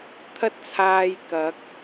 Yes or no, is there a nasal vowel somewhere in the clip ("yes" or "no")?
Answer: no